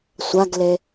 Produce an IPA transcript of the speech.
sʷaɡle

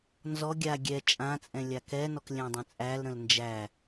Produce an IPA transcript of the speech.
nzɔ ɡʲa ɡʲɛ t͡ʃʼãt͡sʼɛ̃ lʲakɛnɔk lʲæ̃dˤə̃t͡sʼælɾə̃l nd͡ʒæ

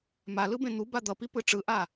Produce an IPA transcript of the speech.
malɯbẽ n̪uba d̪ʌpipɯ ʈ͡ʂɯʔa

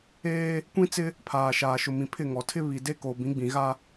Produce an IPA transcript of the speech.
eː˦ | kʷĩ˦t͡sɪ˦ | pʰaː˨ʃaː˨ʃʊ˨ mĩ˨pʰɪ˦˨ŋɔ˨ tʰɪ˦βi˨de˦ ko˨bĩ˨˦ɡ͡bĩ˨ɣa˦

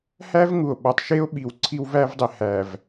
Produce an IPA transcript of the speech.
hæ˦v ŋu˨o̯ɓɒ˨tˤ ʃe˦o̯ ɓi˨w ǀʰi˦wvæ˦vdˤe˨ hæ˨v

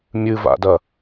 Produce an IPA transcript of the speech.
mʲɨva̰dɐ

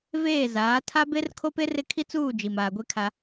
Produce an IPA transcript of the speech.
veː˦˨zaː˨˦ tʰa˦be˦r kʰo˦pe˦rɪ˦˨kʰi˦ t͡suː˦˨ d͡ʒi˨maː˨ɡʷe˦kʰa˦

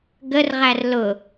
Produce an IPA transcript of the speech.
ɡərʁær lʊ

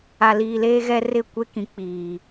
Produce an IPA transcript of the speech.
a˨liː˨leː˦ɣɛ˦ rɪ˦˨kʷe˦kĩ˨ k͡piː˨

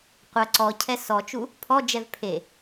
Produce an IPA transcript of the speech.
qʷɐ ǀɔcʰɛ sɔt͡ʃu | pʰɔd͡ʒɛv pʰe

